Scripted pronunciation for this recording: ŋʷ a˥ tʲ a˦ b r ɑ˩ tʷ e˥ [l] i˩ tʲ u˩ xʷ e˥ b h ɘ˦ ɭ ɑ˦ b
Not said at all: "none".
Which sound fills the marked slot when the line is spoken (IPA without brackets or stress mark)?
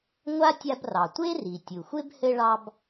r